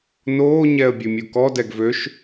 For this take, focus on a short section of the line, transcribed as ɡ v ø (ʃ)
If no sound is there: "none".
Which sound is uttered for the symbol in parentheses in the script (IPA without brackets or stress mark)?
ʃ